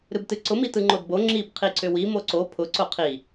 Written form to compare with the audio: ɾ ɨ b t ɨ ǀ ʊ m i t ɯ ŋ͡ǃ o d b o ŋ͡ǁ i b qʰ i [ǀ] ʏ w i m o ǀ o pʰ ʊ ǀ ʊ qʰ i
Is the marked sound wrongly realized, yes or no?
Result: no